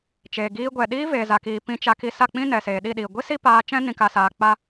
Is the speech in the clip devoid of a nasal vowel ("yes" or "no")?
no